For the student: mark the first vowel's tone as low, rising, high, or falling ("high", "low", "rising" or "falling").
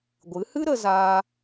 rising